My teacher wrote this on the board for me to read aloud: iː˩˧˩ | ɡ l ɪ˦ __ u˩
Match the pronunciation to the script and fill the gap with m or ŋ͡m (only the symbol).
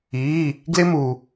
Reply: m